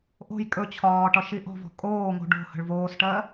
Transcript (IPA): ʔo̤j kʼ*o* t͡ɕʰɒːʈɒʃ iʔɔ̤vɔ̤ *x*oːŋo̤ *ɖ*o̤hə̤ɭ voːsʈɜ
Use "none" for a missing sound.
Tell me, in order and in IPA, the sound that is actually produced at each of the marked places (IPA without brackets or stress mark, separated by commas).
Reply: ɵ, kʼ, ɖ